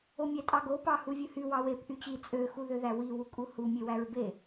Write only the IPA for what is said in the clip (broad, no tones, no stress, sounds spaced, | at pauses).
o mʲ æ tʼ ɑ ɡ o p ɑ h u vʲ ɯ h y w ɑ w e p ʔ y t͡ɕ i t͡sʼ ø x u ð ø ð æ w i w u kʼ u h u mʲ e w æ ɹ b e